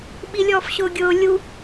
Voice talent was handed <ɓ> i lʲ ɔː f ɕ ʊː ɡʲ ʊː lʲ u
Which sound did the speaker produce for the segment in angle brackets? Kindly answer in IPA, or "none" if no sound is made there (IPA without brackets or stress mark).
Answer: ɓ